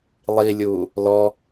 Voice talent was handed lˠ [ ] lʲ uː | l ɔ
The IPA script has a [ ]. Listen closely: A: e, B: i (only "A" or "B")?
B